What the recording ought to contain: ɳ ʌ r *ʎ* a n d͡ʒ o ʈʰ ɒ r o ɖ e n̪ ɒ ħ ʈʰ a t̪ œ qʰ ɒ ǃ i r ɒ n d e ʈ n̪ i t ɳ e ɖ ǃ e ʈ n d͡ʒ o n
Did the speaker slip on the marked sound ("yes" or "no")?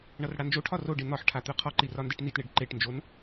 yes